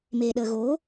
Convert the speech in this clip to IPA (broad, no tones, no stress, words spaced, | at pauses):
meːɗəːɣoː